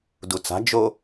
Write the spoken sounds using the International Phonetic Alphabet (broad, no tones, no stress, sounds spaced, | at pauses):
d u t͡s a̤ d͡ʒ o